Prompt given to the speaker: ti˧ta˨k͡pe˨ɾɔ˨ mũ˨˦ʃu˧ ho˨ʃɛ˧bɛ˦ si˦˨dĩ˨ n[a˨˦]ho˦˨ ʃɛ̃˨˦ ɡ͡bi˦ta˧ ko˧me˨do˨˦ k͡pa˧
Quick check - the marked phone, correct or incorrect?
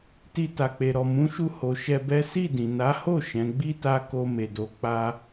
correct